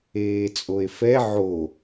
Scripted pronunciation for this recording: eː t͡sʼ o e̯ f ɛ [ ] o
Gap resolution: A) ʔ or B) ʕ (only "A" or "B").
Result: B